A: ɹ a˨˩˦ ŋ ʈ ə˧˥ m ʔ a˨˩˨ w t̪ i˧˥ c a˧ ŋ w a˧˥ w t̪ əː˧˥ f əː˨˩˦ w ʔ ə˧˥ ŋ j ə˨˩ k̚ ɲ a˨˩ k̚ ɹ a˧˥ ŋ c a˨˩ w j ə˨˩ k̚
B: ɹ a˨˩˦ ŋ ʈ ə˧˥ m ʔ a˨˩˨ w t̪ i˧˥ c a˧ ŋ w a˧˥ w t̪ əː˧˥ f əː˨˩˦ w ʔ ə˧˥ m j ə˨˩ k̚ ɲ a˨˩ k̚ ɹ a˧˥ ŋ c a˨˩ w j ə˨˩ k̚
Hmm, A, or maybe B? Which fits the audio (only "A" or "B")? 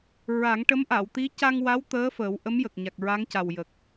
B